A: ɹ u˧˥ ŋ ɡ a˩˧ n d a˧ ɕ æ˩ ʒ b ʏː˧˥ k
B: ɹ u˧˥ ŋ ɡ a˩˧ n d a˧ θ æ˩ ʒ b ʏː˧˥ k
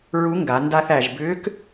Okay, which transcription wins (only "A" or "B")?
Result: B